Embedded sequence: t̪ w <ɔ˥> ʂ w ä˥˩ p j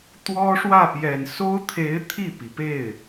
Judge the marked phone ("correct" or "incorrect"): correct